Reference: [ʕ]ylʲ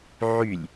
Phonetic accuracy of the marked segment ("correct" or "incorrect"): correct